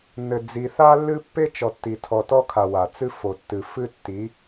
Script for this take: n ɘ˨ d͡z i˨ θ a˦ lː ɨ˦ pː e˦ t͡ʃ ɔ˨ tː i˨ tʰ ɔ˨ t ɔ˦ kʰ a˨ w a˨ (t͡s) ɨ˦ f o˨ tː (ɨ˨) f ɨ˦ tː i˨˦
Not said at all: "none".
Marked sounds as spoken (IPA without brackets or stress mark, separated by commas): t͡s, ɨ˨